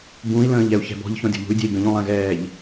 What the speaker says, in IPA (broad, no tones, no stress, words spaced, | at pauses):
bũi̯lə̃ːʎ ɛu̯çɛ̤bɔ̤ʎ çɔ̃dʲɔ̤ʎṳy̯dʲɛ̤i̯ ɡə̃ʎũlˠɛ̃ɣɛːʎ